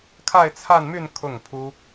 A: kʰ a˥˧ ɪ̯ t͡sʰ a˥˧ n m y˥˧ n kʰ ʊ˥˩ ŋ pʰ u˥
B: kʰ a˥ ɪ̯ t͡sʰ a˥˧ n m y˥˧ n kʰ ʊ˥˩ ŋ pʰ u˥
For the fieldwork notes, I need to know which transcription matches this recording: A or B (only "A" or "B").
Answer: A